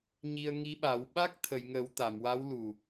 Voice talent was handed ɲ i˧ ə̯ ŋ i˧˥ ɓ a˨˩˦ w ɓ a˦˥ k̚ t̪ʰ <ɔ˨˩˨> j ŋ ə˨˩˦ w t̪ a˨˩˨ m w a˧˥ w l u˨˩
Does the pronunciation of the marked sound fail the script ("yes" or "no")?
yes